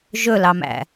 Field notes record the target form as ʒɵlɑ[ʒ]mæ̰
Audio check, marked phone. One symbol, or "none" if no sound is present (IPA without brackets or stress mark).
none